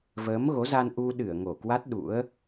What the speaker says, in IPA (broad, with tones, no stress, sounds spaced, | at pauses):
v əː˨˦ m ɣ o˨˦ z a˧ n ʔ u˧ ɗ ɨ˧˩ ə̯ ŋ o˧˩ k w a˦˥ t̚ ɗ ṵ˧˥ ə̯